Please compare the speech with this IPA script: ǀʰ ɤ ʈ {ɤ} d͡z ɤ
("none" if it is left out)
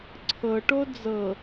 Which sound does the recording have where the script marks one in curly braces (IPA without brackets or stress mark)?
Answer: o